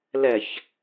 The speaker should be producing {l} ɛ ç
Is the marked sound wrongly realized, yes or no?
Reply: no